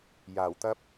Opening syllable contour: low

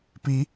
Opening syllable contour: rising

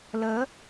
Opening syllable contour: rising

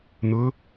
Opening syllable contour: rising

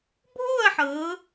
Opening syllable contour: falling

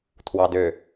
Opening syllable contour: low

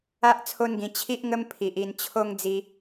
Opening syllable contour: high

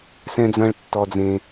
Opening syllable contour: high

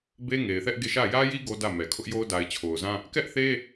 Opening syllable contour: high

